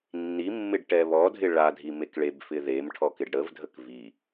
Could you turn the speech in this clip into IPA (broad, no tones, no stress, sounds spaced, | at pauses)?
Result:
nː i mː ɪ ɖ ʈ ɛ β ɔ dʱ ɪ ɭ a dʱ i m e k ɭ e b f ɪ ð e m ʈʰ ɔ k ɪ ɖ ɽ ə v dʱ ə k v i